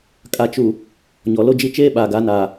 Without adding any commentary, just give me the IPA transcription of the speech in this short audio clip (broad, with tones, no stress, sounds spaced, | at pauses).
kʼ a˨ t͡ʃ u˨ | ɲ ɔ˨ l o˦ d͡ʒ i˦ t͡ʃ eː˦ ɓ aː˨ ɡ a˨˦ n aː˨